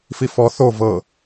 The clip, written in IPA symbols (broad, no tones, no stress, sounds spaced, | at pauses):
f i f ɔ θ o v ɤ